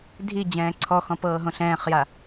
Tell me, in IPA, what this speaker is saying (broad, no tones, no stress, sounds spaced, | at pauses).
dʱ i d͡ʑ ɛ̃ː ǀʰ ɔ x ɔ̃ p ɤː ɦ õ ɬ ɛ̃ː χ j a